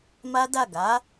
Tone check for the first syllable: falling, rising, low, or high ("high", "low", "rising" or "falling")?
high